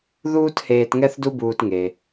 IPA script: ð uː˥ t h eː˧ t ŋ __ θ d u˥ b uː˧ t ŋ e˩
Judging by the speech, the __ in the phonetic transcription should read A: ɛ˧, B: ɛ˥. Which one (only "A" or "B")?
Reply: B